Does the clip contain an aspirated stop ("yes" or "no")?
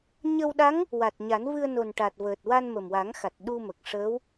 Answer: no